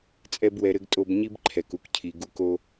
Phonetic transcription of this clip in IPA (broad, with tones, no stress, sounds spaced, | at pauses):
t͡sʼ ɛ˦ b w ɛ˧ ɾ ɘ˦ ɡ tʼ o˧ b ɲ i˦ b ǃʰ ɛ˨ k u˧ k cʰ i˨ ɡ u˧ k o˦